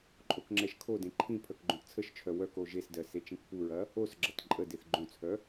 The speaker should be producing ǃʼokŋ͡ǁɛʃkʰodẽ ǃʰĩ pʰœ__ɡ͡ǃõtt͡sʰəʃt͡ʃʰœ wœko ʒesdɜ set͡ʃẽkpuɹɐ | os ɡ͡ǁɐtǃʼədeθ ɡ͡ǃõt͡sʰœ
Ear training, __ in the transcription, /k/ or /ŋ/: k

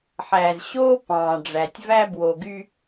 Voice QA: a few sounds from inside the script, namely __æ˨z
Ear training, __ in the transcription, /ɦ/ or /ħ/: ħ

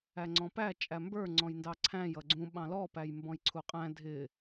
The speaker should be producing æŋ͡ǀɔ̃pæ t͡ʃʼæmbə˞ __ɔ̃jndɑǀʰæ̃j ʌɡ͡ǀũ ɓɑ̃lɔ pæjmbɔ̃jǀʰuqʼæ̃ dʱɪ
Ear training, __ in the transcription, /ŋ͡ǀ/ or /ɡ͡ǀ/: ŋ͡ǀ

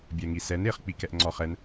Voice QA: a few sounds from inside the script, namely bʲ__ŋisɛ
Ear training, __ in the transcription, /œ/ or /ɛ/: ɛ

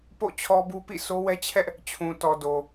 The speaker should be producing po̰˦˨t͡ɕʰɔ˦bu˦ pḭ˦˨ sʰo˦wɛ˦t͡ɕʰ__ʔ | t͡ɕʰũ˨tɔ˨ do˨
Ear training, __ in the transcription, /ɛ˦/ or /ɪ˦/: ɛ˦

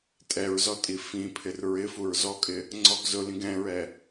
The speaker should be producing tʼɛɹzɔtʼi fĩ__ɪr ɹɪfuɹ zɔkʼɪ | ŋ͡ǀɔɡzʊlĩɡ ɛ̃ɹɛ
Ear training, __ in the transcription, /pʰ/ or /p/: pʰ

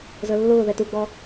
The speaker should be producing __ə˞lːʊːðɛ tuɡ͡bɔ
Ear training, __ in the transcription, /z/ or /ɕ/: z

